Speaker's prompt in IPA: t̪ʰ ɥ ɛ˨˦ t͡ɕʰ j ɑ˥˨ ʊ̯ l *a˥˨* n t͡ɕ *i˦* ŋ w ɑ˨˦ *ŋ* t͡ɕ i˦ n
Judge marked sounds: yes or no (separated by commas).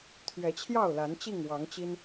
no, no, yes